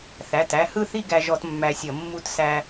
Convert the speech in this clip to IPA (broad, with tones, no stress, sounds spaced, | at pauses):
θ æ˩˧˩ t æ˧ h ɯ˥˧ θ i˥˧ ɡ æ˧ ʒ ɔ˧ t mː æ˧ sʲ ʌ˧˩˧ mː u˥˧ t s æ˧